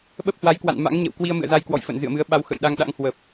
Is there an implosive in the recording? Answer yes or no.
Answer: yes